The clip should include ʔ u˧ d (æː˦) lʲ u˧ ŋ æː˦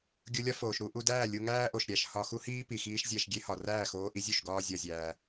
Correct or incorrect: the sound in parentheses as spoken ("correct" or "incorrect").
incorrect